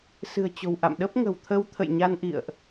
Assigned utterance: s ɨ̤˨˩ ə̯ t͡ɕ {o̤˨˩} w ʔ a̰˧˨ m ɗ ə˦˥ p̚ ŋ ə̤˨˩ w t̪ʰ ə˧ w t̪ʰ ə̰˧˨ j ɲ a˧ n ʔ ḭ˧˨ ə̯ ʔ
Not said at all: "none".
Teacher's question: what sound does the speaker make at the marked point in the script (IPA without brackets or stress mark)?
o̤˨˩